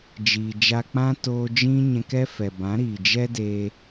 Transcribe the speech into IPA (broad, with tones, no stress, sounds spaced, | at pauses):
d͡ʒ iː˨ d͡ʒ a˧ k͡p ã˦ t oː˧ d͡ʒ ĩ˦ ɲ ɛ̃˧ k ɛ˦ f ɛ˨ b ã˨˦ ɾ iː˨ d͡ʒ ɛ˦ d e˧